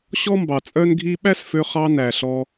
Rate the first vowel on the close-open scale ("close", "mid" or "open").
mid